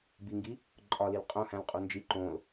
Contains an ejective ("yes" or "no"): yes